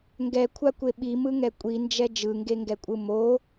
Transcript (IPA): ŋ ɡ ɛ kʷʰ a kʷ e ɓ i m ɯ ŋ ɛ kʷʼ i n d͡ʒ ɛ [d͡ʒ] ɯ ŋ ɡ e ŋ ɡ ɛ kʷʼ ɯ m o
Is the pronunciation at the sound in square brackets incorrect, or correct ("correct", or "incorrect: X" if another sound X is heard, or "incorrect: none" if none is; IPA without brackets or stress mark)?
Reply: correct